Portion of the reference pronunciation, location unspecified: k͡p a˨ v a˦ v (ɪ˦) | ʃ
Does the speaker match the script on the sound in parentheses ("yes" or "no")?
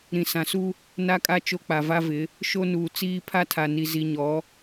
no